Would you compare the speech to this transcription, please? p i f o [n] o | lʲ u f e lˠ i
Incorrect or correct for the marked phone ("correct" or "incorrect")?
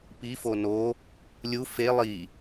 correct